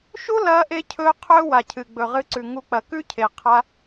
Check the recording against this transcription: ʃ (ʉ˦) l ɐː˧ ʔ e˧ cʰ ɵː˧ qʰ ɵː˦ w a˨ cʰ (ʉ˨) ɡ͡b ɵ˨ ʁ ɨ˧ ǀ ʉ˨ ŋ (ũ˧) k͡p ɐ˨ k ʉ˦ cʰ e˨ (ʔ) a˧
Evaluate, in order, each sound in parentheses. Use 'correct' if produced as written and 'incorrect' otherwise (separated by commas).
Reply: incorrect, incorrect, incorrect, incorrect